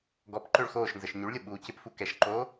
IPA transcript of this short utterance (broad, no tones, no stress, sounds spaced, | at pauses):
ɡ ɔ p ǃ ø ɭ x oː ʃ n z ə ʃ ɲ y ɭ lʲ ʊ ɓ uː c ɪ p f u k ɛ ʃ ǃ oː